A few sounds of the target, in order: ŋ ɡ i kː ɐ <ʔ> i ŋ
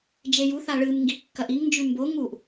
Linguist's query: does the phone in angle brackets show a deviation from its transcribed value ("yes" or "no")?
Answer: no